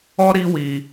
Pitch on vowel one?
high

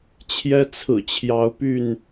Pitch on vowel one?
high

